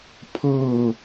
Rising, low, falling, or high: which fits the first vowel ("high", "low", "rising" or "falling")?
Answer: falling